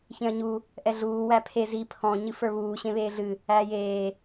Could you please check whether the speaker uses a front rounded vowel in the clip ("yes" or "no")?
no